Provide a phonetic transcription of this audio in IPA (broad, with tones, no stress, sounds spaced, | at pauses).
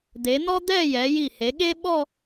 d̪ e˩˧ n̪ ɔ˥ d̪ ɛ˥˧ j ɛ˩˧ j i˧˩ h e˩˧ ɠ e˥ ɓ ɔ˥˧